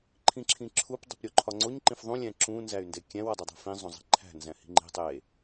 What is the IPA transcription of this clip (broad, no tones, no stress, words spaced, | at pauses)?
ǃʰĩǁʰĩǁʰup dˤi̤pɾʲoǃʰɒŋ͡ǀoɲ ǃĩfðˤũ lʲæ̃ǁũ nzæy̯ndekʲæ̃w ɒdˤedˤæ̤fĩ zˤõzˤi̤ǃʰæ̤ nzæ̃hi̤ŋ͡ǃi̤ tˤe